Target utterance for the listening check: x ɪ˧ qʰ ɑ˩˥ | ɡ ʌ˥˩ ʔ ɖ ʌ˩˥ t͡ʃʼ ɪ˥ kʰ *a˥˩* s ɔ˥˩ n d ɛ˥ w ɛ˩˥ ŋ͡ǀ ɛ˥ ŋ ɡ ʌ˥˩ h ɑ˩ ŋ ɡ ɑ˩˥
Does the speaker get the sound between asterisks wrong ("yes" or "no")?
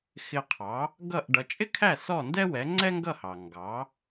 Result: yes